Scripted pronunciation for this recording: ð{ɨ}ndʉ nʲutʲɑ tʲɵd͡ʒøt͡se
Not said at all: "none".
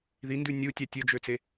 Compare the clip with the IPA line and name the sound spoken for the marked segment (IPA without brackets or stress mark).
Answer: i